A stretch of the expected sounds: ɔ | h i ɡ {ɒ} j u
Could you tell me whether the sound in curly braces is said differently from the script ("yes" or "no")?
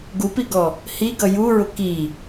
yes